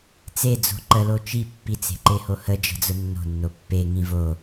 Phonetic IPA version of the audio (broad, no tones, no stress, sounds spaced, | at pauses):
t͡s e d͡z o̤ ǃ ə l o t͡ʃ i pː i t͡s e̤ ǃ e h o h ə d͡ʒ ə̤ d͡z ʊ nː o̤ nː o pː e ŋ ĩ v o